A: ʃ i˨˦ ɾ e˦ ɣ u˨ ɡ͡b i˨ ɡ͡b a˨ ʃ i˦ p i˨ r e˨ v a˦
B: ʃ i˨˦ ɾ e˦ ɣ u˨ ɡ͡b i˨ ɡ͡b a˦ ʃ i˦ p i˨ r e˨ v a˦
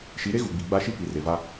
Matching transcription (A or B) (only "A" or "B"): B